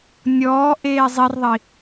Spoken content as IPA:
nʲ ɔː ʔ eː zˤ i r ðˤ i

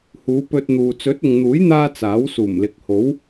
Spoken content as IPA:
h uː˨˧ p ɵ˧ t̚ n̪ uː˨ t͡s ɵ˨˥ t̚ ʊ˨ ŋ n̪ uː˨˥ j n̪ aː˧ t͡s aː˨˥ w s uː˨˩ m l ɪ˨ k̚ h o˨˥ w

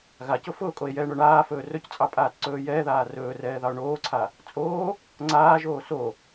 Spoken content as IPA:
ɣ a c ʊ f ʊː kʼ o e̯ j ɛː ɳ o ɳ aː f ɵː r ɵ c t͡sʼ ɑ pʼ aː t ǀ ɵː j ɛː ð aː r ɵː r ɛː ð ɑ o̯ ɳ oː ǀʰ a | t͡sʼ oː | ŋ͡ǀ aː ʒ oː s o

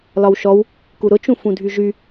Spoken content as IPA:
l ɒ w ʃ ɔ w | k u ɾ ʊ t͡ʃ ũ f ũ dʱ y ʒ y

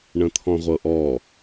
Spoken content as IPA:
ɳ ə̃ t̪ʰ ɔ̃ ʁʷ ɤ ʔ ɔ

